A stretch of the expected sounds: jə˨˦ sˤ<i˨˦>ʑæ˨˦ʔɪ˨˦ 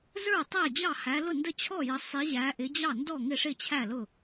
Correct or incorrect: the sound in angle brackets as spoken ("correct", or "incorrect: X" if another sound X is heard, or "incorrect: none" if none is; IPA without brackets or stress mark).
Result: correct